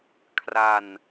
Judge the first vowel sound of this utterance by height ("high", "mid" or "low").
low